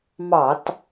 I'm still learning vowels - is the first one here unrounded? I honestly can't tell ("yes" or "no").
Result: yes